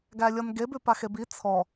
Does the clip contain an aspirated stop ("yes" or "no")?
yes